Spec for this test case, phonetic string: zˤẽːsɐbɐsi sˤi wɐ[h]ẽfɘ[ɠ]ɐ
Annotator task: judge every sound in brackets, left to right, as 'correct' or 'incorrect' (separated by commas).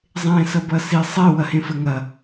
correct, incorrect